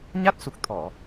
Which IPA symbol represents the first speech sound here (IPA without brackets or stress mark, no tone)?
ɲ